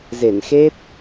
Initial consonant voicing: voiced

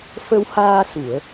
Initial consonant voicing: voiceless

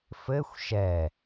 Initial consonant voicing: voiceless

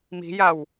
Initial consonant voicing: voiced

